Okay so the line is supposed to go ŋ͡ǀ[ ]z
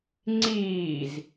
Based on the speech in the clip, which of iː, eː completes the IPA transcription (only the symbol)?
iː